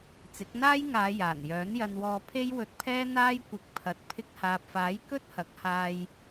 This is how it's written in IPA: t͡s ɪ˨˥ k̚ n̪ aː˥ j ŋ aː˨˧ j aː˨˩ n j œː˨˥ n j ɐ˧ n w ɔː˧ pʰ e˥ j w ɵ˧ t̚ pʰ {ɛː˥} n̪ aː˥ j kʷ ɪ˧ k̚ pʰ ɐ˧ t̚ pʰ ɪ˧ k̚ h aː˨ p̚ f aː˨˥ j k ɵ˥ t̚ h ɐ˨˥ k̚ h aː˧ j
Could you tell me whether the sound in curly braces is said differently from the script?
no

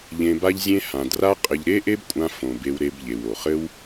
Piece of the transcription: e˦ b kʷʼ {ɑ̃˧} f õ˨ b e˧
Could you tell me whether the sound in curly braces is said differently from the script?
yes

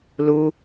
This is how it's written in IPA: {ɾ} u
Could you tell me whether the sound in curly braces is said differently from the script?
yes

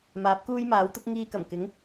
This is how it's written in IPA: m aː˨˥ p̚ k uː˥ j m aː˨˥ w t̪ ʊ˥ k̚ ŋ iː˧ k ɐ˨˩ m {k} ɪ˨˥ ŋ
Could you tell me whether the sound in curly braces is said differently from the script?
no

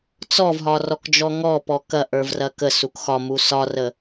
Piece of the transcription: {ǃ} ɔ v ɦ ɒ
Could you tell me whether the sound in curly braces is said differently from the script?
yes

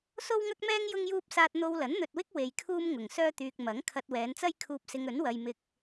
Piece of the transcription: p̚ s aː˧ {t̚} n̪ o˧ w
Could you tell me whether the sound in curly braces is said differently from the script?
no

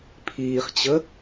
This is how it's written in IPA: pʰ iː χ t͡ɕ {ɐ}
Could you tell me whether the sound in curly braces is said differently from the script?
yes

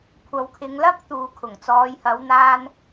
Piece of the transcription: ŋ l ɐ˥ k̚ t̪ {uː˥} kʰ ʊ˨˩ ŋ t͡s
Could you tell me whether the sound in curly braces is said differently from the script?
yes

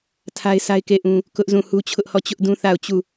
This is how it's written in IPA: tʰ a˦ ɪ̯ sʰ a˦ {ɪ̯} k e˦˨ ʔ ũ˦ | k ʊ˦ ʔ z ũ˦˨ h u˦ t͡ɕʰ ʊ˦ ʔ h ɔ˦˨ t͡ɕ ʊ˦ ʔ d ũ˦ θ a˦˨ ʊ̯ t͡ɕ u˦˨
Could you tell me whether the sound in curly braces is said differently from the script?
no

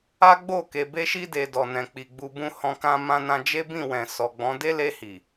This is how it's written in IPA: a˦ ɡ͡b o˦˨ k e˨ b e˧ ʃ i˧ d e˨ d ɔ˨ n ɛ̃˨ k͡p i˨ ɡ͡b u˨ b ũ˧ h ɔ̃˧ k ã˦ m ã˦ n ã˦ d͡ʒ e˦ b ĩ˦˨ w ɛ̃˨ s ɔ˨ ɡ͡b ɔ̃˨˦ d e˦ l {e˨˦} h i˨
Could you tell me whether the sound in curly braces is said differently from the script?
yes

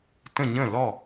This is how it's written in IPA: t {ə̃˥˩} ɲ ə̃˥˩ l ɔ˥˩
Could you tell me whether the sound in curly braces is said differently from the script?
no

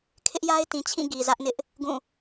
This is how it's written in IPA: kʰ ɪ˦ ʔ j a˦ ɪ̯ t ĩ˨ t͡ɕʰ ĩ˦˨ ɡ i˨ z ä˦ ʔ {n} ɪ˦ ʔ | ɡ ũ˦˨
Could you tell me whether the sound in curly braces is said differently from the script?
no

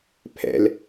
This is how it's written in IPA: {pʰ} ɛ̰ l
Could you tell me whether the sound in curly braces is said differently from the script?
no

